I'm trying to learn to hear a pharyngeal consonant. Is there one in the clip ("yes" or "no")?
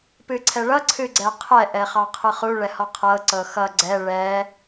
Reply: no